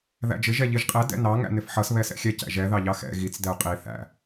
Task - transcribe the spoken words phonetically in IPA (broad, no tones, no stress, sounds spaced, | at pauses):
ð æ̰ d͡ʒ ɪ ʒ ɛ ʎ i ʒ qʼ ɛ d ɛ̰ n ɑ ŋ æ̰ n ɪ f ħ ʌ s β ɛ s ɛ̰ xʲ ɛ c æ̰ ʒ ɛ ð ɑ ʎ ɑ x ɛ̰ ɣ i t͡s d ɛ u̯ qʼ i θ æ̰